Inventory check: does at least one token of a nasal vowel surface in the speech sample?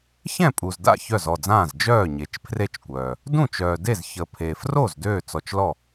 yes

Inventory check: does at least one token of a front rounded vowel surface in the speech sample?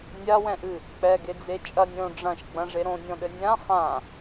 no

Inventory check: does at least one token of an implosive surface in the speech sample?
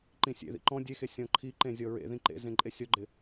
no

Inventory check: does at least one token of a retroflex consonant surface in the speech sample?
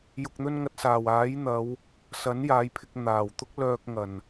no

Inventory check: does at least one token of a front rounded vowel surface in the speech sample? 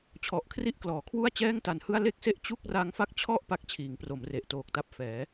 no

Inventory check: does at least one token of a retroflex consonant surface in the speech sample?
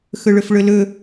yes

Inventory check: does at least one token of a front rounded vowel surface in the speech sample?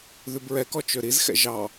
yes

